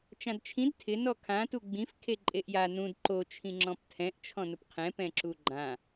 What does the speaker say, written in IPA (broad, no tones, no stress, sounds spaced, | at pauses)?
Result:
t͡ʃ ã d t͡ʃʰ ĩ d tʰ ɪ n ɔ kʰ ã t u ɡ͡b ĩ f kʰ e ǃʼ e ʔ j a n ũ d ǃ o t͡ʃʰ ĩ ŋ͡ǁ ɔ̃ p tʰ ɛ̃ ʔ t͡ʃʰ ɔ̃ n ʊ p qʰ ɛ̃ p ɛ̃ ǁ u ɡ͡ǃ ã